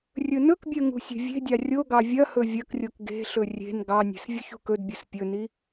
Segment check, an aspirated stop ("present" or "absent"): absent